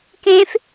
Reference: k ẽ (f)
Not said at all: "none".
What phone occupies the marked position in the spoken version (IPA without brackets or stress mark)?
f